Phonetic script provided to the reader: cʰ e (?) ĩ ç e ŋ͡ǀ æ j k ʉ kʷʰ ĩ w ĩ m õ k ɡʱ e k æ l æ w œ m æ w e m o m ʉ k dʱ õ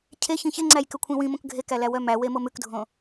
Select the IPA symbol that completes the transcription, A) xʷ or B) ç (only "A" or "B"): B